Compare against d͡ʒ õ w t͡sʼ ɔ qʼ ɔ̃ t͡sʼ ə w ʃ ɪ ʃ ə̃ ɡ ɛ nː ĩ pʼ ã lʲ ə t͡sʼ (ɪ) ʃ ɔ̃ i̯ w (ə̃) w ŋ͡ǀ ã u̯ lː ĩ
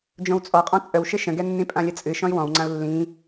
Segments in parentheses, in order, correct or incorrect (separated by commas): incorrect, incorrect